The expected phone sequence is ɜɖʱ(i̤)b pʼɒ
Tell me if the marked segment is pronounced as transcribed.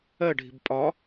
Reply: yes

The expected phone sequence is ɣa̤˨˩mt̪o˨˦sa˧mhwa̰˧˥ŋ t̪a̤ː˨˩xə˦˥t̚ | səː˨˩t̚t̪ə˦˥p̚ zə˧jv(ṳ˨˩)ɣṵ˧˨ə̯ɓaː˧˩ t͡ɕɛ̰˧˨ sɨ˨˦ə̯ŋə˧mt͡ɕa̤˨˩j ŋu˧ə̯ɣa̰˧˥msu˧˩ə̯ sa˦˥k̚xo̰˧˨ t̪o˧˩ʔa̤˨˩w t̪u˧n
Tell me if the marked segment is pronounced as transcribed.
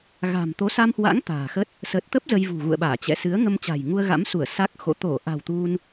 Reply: yes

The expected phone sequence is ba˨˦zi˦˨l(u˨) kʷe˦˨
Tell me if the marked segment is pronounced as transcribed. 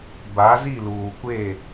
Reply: no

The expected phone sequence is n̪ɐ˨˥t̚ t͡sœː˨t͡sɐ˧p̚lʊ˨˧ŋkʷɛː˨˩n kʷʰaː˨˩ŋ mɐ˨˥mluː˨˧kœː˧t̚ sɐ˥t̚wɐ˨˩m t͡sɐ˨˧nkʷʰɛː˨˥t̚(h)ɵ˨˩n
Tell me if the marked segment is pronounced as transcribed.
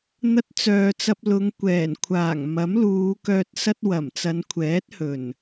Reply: yes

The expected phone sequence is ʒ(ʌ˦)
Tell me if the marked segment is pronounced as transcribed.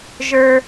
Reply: no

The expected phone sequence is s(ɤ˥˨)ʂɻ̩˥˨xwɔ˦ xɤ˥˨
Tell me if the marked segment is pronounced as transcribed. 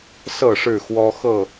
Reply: yes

